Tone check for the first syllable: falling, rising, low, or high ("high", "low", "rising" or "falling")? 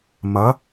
rising